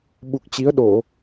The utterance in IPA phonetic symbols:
ɓu˨˩k̚t͡ɕi˨˦ə̯ɗo˧˩˨

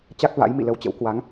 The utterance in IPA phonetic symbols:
t͡ɕa˦˥k̚ va̰˧˥j mḭ˧˨lə˧wt͡ɕə̰˧˥w kwa˨˦ŋ

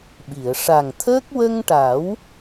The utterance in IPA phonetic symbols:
ɓi˨˩˨ə̯ ʂa˨˩ŋt̪ʰəː˦˥k̚ wə˧ŋʈa˨˩˦w

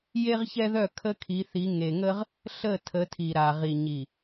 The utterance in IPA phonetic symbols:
je˦ʁçɛ˦ðœ˦˨kʰə˦ kʰi˨˦θi˨˦ ŋe˨ŋə˦ʁ | ɬə˦˨ tʰə˨˦tʰi˨ɾa˨ ʁi˨ɲi˨

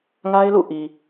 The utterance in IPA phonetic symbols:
ŋa˦ɪ̯lṵ˦˨ ʔi˨

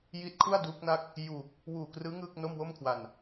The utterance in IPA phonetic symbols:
ji˦˥t̚kʰu˥˩a̯ duː˦˥k̚na˥˩k̚ | juː˨˩k̚ | wuː˨˩krɯː˦˥ ŋɯː˥˩k̚ no˥˩mwo˥˩mkʰwa˨˩n

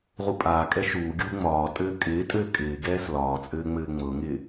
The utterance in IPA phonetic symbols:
ʁupʼaːkʼɛ ʃuːɡʲuː ŋ͡mɒːtʼɘː kʼɪːtʼɘː kʼɪːɡɛːs lɒːt͡sʼɘː ŋ͡mɘːŋ͡mɤŋɪː

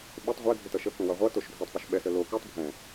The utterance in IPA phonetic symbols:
ɓʏtˤ ʁʷɛdʱʏtʌ ʃəkũwʌ ʁʷʌtoʃ dʱotˤpʏʃ ɓɛsə lo kʉtˤ bʱɛ̃

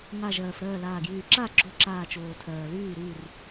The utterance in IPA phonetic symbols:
ŋa˧˩ʒɜː˩f ɾɜː˥˩laː˧˩ɡjyː˧˩ ǁa˥˩ɡ͡ǁo˧˩ ǁaː˧˩t͡ʃoː˩ tʰɜː˩lyː˥˩ɾyː˥˩r

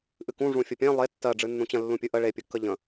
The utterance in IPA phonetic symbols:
ʔɨkũ ʐũfʲəpʲẽ lˠe tːɜ ɖ͡ʐɨnːũt͡ɕə̃ lːũpʲɨʔə ɭe pʲɨkːəʎə̃

